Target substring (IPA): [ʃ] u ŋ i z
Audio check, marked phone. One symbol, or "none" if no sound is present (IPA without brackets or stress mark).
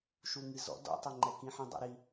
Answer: ʃ